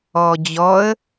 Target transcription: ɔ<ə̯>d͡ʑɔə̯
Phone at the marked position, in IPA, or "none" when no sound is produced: none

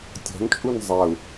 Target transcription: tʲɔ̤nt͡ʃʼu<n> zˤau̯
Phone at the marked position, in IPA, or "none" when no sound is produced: n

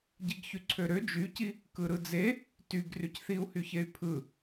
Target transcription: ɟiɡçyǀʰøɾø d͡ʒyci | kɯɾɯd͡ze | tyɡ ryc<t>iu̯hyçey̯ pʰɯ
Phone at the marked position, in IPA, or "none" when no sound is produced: θ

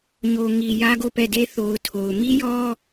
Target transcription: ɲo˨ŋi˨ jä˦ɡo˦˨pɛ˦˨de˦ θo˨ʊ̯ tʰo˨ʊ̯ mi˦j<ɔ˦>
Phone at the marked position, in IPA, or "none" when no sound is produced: ɔ˦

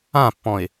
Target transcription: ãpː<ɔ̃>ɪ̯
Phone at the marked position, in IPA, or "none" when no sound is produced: ɔ̃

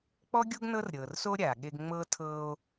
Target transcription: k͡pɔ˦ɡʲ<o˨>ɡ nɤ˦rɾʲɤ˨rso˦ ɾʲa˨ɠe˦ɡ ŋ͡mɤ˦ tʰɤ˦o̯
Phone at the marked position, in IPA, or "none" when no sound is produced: o˦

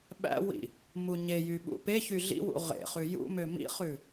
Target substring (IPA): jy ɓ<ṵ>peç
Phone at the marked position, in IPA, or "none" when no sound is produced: ṵ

